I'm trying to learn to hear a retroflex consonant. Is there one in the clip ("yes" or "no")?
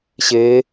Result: no